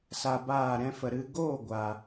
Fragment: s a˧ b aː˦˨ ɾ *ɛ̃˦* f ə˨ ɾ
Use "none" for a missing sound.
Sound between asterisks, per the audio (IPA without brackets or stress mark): ɛ̃˦